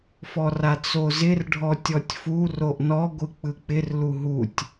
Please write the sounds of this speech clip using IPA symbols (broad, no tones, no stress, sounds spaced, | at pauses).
f ɔ r a t͡s o z ɪ r ɖʱ ɔ tʲ ɔ tʲ f u r o ʔ n ɔ ɡʷ ɯ k͡p ɯ k͡p ɪ r l u ɦ u tʲ